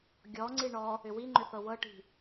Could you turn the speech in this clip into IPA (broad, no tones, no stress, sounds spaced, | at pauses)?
ɡʲ ɔ ŋ͡ǀ i ɳ ɔ | ʏ w i ŋ͡ǃ ʏ θ ɤ w ɤ ʈ i̤